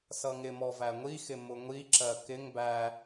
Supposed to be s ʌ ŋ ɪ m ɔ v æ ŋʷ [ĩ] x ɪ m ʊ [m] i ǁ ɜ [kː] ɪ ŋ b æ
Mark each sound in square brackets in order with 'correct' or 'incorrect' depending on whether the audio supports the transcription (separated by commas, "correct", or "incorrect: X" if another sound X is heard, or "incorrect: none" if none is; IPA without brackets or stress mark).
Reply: incorrect: i, incorrect: ŋʷ, incorrect: k